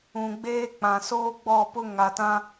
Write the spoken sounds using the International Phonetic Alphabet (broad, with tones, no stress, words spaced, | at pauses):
ũ˨ɡ͡beː˦k͡pã˨ soː˦ɡ͡bɔ˦˨pʊ˦ ŋa˨tã˦